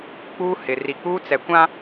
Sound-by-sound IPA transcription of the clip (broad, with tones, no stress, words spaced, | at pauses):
k͡puː˦ hɪ˨ ri˨k͡puː˦t͡sɛ˨ kʷã˦